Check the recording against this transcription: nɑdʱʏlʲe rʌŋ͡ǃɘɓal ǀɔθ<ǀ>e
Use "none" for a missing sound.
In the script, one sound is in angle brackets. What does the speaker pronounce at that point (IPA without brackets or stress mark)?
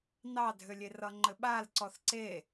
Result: ǀ